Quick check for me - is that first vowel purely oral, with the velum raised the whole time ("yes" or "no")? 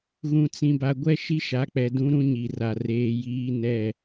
no